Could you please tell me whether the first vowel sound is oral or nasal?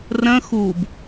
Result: nasal